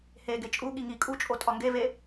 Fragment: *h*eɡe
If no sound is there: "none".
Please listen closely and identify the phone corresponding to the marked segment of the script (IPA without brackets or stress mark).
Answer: h